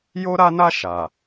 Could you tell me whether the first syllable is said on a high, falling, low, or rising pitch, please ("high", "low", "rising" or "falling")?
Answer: high